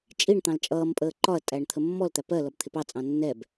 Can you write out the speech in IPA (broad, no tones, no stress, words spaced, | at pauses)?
t͡ʃʼiɳ t̪ɑ̃lt͡ʃʼʌːmpʼəː ǃɒɐ̯ tʼæɳt̪ʰəmːɔlt̪æ pɜ lʌbt̪ʰɪpɑt͡sʼɑ̃ nːɛb